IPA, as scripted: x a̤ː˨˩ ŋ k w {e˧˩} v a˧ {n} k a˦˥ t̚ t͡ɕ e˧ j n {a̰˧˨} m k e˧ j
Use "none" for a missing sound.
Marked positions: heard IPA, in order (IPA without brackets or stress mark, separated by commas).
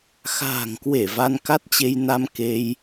e˧˩, n, a˧